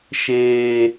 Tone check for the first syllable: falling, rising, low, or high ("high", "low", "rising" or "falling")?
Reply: low